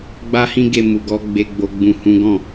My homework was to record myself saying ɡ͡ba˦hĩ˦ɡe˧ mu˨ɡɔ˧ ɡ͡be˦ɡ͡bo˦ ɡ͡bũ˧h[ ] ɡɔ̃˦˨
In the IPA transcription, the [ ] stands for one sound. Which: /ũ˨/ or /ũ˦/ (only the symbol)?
ũ˦